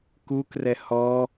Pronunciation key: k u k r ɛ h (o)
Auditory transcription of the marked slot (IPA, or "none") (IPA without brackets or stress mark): ɔ